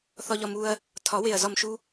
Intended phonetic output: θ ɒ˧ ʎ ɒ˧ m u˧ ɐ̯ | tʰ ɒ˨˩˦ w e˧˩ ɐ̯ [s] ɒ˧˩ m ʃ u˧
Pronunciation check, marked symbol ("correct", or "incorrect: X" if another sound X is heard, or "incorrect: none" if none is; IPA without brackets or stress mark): incorrect: z